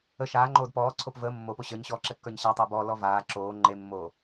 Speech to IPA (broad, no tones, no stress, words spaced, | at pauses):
ə ʃaːŋ͡ǃoːd pɔːǀʰop vəː mːopo ɕə˞ɲɕɔːǁɛkːə˞ɲ ɕætˤəː bɔlɔ vaː ǁoː ŋ͡ǃemːoː